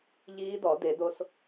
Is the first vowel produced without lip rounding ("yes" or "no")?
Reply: yes